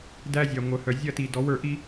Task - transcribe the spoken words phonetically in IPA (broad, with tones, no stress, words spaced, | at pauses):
dæ˦ zʲæ˨ ŋʷœ˨ hœ˨ zʲɐ˦˨ti˨dɔ˨˦w ə˞˨ʔi˦